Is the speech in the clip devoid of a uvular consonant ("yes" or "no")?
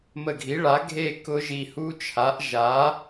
yes